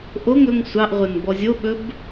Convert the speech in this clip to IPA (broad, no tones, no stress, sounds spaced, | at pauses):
ʔ o ŋ ɵ ŋ sʷ ɑ ʔ ʁʷ ə n b ɔ zʲ o ɓ ɵ b